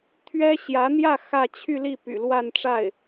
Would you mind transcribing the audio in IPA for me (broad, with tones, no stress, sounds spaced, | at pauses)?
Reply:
t̪ʰ ɥ ɛ˥ ɕ j ä˧˥ n̪ j ä˥˧ x ä˥˧ t͡ɕʰ y˥˧ l i˥˩ p y̰˨˩ l w a˥˧ n ʈ͡ʂ a˥˩ ɪ̯